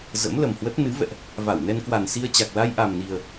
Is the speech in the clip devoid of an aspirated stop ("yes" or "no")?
yes